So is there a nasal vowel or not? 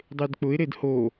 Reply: no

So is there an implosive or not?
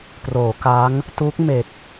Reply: no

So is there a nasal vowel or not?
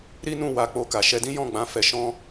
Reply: yes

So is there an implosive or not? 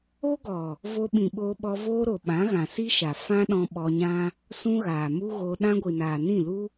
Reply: yes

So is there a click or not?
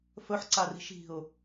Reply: yes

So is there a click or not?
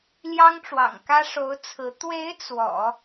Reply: no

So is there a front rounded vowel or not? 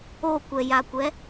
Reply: no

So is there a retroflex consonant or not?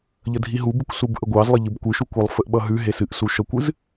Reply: no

